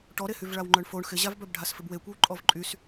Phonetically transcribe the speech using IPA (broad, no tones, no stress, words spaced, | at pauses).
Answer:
ʈɔɾehyv ɭawŋ͡ǃœɳfoɳ xɪʑavbœb ɖʱasfɪbwekʷew ǃʼɔvǃʼys